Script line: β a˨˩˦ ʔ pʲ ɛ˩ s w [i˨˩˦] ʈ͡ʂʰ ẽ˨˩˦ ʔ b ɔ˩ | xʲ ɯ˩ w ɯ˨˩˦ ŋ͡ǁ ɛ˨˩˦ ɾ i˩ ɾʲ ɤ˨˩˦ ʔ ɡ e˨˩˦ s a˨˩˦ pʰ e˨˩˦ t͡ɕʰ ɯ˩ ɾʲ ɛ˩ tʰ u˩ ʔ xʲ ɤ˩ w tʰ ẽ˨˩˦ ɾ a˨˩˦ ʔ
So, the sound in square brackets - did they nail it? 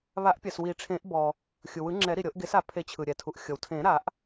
yes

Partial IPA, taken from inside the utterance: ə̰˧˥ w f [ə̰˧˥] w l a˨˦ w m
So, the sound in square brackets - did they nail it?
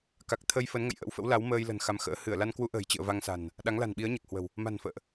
yes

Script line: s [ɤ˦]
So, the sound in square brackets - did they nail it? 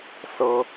yes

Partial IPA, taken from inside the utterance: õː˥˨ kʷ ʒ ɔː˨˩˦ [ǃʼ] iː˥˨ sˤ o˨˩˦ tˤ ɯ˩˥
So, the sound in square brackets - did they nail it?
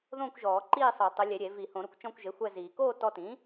no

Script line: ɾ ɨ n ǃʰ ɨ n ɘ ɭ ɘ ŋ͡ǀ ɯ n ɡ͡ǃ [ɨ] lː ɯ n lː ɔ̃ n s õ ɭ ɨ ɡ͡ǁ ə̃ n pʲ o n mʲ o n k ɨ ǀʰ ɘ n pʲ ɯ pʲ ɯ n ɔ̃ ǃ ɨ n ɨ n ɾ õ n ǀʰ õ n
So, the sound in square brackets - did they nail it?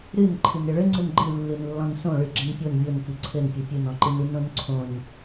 yes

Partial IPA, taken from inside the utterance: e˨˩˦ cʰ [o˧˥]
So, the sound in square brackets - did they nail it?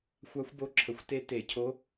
yes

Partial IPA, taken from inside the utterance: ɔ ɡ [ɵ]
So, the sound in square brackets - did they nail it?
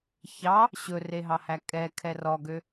no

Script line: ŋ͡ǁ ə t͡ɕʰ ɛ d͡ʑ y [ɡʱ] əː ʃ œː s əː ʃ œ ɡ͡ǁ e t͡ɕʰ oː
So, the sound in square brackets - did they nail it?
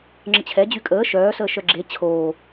no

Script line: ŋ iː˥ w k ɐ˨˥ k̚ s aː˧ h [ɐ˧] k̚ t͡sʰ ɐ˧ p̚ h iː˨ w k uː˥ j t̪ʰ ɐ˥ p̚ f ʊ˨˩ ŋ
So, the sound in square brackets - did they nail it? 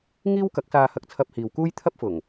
yes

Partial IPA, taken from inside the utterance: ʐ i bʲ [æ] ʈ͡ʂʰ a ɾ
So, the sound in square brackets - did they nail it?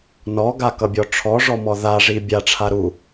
no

